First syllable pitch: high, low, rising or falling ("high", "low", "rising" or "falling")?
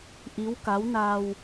rising